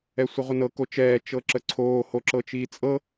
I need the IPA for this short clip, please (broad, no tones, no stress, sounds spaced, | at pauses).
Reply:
ɛ sʷ ɤ ʁʷ ə n ɤ k o t͡ʃ ɛː t͡ʃ ɤ ǁ ə ǀʰ oː h o ǁ ɤ t͡ʃ iː t͡sʼ ɤ